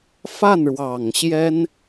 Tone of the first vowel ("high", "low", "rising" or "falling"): falling